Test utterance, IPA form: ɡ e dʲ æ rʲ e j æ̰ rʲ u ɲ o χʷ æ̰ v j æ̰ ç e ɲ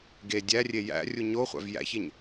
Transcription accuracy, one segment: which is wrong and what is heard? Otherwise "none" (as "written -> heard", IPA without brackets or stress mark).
none